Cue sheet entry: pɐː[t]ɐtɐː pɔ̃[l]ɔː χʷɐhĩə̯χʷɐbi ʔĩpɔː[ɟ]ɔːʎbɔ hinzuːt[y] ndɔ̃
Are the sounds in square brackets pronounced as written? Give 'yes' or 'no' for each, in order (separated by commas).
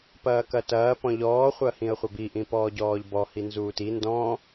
no, no, yes, no